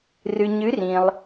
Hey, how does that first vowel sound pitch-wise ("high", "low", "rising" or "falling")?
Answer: low